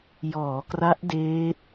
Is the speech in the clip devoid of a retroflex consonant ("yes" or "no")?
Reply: yes